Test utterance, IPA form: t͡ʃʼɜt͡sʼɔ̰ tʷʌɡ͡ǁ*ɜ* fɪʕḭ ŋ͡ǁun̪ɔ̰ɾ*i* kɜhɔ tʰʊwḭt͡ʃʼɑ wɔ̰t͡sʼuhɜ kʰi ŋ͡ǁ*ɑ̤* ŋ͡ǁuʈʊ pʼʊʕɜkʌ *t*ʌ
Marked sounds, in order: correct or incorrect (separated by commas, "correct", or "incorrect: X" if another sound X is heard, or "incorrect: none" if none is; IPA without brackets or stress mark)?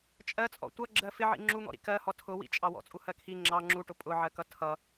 correct, incorrect: ḭ, incorrect: ɑ, incorrect: tʰ